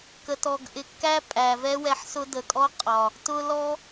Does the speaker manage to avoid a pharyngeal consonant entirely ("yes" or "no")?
no